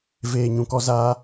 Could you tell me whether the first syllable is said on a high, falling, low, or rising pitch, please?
low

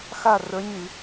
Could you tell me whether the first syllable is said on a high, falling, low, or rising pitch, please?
falling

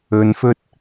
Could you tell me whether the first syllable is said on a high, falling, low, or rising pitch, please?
low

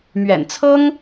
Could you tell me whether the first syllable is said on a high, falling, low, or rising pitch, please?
low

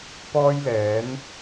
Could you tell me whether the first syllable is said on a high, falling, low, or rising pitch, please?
high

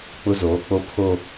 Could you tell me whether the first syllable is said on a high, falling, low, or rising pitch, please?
high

